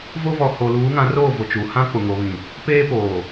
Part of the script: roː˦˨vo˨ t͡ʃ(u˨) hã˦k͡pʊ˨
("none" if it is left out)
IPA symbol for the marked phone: u˨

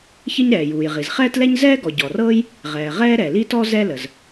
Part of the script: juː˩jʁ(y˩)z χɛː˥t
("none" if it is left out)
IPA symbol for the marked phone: i˩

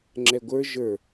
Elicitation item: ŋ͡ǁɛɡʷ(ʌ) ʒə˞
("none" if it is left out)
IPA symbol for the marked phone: ə˞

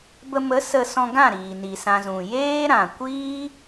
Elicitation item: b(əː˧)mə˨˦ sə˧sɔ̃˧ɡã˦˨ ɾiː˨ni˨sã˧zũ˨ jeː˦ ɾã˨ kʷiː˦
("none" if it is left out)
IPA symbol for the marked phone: ə˧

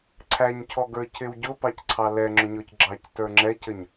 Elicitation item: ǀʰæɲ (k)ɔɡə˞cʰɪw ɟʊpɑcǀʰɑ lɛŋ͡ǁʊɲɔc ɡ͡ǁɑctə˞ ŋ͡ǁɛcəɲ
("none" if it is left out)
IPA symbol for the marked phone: cʰ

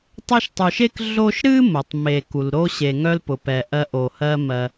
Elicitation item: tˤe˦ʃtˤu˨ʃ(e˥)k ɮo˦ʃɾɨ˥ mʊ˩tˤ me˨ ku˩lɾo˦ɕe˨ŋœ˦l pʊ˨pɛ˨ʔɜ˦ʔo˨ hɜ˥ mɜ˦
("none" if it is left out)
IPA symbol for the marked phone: e˥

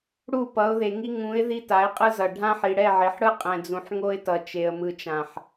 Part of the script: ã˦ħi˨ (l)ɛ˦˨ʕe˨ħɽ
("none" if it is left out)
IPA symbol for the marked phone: ɽ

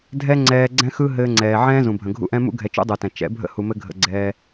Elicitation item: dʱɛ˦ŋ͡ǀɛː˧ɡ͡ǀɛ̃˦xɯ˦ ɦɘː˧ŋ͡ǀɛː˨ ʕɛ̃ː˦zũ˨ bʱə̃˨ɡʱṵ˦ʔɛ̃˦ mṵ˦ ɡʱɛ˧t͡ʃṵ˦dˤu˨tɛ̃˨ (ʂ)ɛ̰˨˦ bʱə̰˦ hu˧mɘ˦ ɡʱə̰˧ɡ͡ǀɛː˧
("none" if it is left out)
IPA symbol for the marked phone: t͡ʃ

